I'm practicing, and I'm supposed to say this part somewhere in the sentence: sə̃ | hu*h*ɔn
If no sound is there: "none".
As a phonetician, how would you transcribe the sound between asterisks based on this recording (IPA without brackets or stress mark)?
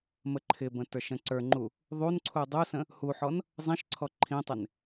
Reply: ħ